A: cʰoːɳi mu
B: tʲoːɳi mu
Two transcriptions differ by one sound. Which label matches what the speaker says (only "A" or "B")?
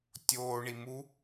B